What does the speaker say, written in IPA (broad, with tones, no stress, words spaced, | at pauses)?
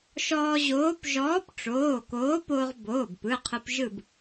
ʃɔː˧ʑoː˨˥p ʒɔː˨˥pʈ͡ʂoː˩˧˩ koː˨˥poː˧ʁboː˩˧˩bpɯ˩˧˩ qʰɯ˧pʒɯ˥˨b